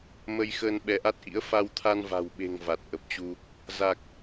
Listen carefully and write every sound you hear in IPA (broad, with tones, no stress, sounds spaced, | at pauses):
m ə˧ j x əː˧ n ɓ ɛ˨˦ ʔ a˦˥ t̚ ʔ ḭ˧˥ ə̯ f a˧ w t̪ʰ a˧ n v a̤˨˩ w ɓ e̤˨˩ ŋ v a˨˩ t̚ ʔ ə˨˩ p̚ t͡ɕ u˧ | z a˨˩ k̚